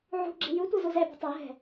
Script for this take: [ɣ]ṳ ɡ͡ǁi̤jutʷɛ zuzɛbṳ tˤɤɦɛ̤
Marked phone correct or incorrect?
incorrect